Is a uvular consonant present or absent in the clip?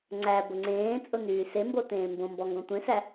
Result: absent